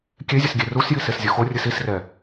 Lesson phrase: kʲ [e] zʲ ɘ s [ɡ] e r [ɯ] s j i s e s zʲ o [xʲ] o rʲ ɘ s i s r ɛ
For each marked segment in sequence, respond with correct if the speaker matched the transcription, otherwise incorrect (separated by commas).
correct, incorrect, incorrect, incorrect